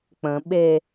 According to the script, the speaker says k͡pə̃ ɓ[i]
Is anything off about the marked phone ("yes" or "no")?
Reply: yes